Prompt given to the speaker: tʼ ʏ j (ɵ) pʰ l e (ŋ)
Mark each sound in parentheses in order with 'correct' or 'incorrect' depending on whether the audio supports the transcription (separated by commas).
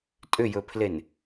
correct, incorrect